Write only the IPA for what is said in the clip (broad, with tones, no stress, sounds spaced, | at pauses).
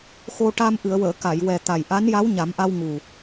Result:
x o˧ ʈ a˧ m ʔ ɨ˨˩˨ ə̯ w əː˨˩˨ k a˨˩˨ j w ɛ˨˩ t̪ a˨˩ j ʔ a˧˥ n j a˧˥ w ɲ a˨˩˦ m ʔ a˧ w ŋ u˨˩